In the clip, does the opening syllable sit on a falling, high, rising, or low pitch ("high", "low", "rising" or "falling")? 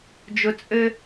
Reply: low